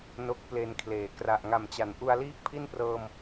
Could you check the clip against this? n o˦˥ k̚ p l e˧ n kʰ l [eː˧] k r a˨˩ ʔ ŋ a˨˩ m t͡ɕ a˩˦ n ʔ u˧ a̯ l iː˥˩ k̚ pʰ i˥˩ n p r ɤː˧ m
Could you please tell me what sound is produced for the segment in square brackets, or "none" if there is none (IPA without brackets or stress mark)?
eː˨˩